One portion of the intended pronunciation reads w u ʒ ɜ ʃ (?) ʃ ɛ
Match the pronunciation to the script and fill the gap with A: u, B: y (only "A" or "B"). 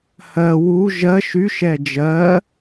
B